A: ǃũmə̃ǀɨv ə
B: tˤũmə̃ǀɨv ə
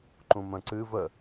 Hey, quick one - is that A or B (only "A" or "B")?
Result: A